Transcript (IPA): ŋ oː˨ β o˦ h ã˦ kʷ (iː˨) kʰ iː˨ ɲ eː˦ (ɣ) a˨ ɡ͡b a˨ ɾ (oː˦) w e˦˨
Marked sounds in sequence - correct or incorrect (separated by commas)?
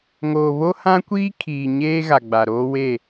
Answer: incorrect, correct, correct